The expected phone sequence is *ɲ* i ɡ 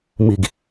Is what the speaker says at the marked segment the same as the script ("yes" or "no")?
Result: no